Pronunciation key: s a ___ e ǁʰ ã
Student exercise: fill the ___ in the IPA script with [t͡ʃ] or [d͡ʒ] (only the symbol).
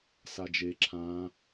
d͡ʒ